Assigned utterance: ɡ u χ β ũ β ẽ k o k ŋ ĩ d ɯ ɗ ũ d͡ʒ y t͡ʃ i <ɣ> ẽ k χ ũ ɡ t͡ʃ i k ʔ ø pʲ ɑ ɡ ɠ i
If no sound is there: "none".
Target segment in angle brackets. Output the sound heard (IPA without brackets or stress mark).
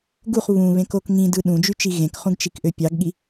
ɣ